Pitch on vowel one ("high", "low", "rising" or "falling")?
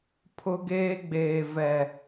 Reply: high